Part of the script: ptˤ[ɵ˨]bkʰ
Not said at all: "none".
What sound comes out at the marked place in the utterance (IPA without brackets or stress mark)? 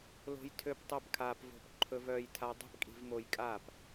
ɵ˦